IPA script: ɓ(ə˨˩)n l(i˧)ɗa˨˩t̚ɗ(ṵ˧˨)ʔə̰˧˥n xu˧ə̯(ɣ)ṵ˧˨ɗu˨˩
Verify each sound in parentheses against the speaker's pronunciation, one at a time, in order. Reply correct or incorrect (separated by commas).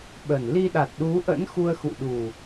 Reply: correct, correct, incorrect, incorrect